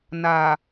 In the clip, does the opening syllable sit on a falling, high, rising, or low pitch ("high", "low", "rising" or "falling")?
low